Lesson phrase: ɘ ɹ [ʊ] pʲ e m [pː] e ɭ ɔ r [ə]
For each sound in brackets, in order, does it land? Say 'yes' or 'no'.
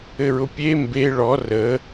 yes, no, yes

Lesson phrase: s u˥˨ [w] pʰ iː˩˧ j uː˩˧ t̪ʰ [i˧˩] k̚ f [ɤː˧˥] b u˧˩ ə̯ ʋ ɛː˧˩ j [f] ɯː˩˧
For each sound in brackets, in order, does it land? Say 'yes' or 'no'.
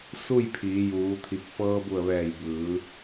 no, yes, no, no

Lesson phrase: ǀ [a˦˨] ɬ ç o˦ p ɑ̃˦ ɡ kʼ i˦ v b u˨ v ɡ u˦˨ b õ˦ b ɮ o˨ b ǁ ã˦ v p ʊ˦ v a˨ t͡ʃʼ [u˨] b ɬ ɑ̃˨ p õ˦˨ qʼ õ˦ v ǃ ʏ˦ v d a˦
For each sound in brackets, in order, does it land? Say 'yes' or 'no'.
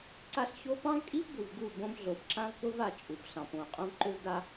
no, yes

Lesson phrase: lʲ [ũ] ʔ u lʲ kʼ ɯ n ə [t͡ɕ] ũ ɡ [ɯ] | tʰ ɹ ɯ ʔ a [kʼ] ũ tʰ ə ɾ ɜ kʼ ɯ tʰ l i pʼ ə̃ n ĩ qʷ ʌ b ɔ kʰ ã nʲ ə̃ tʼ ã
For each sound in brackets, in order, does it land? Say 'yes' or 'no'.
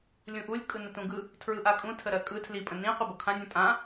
yes, no, yes, yes

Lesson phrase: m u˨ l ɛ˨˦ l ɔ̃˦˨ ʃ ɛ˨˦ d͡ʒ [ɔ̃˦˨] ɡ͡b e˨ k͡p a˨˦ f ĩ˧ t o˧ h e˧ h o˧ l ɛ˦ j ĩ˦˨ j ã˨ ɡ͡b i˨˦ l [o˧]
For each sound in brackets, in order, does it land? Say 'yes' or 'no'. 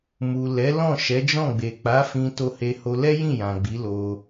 yes, yes

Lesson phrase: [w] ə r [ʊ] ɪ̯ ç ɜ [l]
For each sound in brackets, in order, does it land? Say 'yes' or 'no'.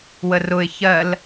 yes, yes, yes

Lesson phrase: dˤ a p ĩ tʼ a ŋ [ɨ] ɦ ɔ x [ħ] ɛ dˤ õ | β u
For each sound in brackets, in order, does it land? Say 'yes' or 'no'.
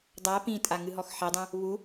yes, yes

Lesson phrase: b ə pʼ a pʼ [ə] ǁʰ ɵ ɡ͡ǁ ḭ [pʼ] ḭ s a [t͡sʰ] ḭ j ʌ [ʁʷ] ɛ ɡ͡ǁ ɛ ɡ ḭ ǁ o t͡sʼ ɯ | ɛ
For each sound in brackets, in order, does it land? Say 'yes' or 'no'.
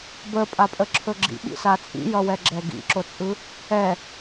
yes, no, no, no

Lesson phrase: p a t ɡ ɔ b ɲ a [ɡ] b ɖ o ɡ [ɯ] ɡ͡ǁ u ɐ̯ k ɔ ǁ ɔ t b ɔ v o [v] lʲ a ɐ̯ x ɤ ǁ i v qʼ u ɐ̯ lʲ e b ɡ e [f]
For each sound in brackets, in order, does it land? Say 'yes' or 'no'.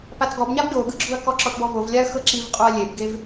no, yes, yes, no

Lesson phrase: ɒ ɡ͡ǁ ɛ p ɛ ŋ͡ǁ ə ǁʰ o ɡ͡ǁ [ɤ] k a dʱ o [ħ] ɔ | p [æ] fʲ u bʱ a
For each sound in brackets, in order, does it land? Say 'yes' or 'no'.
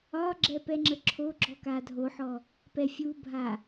no, yes, no

